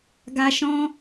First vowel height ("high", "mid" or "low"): low